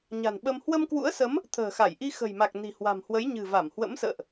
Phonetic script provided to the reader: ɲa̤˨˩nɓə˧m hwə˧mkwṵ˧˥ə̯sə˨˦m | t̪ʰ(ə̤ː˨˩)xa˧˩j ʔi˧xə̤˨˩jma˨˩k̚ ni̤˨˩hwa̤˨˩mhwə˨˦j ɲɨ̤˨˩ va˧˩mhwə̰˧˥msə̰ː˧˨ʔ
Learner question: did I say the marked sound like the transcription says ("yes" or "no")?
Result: yes